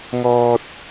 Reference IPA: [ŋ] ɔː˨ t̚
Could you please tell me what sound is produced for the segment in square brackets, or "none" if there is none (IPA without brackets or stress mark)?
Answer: ŋ